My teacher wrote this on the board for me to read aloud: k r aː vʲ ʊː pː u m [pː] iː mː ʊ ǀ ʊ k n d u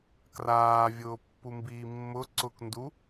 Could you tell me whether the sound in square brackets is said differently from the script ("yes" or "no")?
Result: yes